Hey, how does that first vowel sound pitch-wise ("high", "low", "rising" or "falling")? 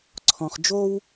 low